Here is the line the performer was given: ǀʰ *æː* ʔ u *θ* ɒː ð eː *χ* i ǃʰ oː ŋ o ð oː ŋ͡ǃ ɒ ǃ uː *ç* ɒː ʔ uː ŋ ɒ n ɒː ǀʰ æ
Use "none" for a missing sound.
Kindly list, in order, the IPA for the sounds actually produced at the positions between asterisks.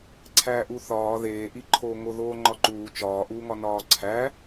æː, θ, ʔ, t͡ʃ

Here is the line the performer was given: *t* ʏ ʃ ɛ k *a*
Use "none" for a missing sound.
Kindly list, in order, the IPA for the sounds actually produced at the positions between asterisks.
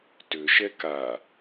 t, a

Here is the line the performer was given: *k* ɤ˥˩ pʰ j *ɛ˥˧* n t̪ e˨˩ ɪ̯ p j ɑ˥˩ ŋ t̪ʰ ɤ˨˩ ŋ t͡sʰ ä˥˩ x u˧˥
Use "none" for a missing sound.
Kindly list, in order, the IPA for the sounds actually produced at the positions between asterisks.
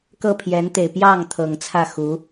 k, ɛ˧˥

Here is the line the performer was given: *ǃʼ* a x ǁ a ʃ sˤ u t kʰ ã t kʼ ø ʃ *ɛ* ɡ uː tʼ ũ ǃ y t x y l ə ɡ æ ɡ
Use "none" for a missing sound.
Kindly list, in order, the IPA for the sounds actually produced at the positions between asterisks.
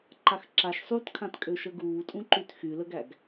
ǃ, ə

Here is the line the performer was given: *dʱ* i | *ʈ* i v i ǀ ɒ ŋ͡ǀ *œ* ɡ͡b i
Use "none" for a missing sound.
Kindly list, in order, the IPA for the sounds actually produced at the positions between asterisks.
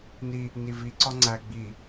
n, n, æ

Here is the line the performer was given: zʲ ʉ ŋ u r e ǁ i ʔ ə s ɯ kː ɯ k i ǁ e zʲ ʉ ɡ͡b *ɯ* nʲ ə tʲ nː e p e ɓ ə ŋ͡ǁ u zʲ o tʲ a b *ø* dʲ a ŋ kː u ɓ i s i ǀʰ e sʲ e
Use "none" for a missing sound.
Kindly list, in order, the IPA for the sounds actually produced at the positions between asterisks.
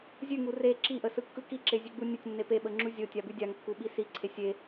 u, ʉ

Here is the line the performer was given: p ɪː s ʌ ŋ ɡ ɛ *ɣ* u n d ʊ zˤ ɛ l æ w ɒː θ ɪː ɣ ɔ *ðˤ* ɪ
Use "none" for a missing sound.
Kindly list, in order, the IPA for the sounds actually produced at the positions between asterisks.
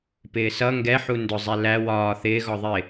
ħ, ðˤ

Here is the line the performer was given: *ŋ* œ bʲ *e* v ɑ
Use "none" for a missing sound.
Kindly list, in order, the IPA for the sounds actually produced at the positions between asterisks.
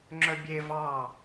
ŋ͡ǁ, e

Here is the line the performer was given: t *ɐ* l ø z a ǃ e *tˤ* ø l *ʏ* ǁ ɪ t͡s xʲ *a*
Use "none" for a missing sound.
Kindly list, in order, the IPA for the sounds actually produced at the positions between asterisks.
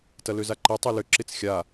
ɐ, tˤ, ʏ, a

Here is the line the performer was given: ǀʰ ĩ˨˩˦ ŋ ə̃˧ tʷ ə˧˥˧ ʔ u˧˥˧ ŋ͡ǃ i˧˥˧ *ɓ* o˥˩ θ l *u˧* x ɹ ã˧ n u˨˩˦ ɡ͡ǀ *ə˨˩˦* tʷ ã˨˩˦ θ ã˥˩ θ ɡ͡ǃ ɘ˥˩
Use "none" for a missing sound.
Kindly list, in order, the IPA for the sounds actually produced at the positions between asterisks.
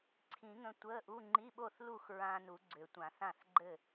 ɓ, u˥˩, ʏ˨˩˦

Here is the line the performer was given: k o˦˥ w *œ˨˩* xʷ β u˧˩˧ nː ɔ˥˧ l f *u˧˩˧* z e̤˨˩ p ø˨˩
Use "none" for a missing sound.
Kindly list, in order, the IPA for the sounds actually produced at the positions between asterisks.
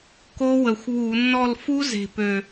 ə˨˩, u˦˥

